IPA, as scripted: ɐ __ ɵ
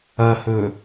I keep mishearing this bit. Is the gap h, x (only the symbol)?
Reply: h